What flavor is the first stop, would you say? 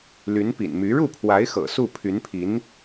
plain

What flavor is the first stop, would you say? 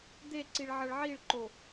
plain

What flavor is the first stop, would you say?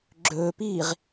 click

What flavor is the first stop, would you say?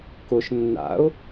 plain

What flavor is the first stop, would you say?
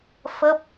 plain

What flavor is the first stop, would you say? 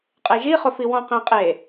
ejective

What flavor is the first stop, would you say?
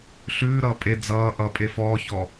ejective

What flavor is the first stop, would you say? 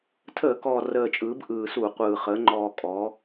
aspirated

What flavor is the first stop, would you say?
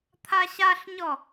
aspirated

